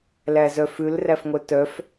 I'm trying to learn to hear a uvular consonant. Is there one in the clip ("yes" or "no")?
no